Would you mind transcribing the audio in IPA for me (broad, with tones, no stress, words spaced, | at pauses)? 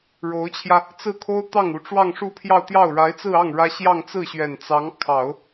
ɻo˧˥ʊ̯t͡ɕʰjä˧ | t͡sɹ̩˥˩kʰo˥ʊ̯t̪ɑ˥˩ŋ u˧˥ ʈ͡ʂwɑ˥˧ŋʂu˥˧pʰjɑ˥˧ʊ̯ t̪jɑ˥˩ʊ̯ɻa˧˥ɪ̯t͡sɹ̩˥˧ɑ˥˩ŋ ɻä˥ ɕjɑ˥˧ŋt͡sɹ̩˥˩ɕɥɛ˨˩n t͡sɑ˧˥ŋkʰɑ˨˩˦ʊ̯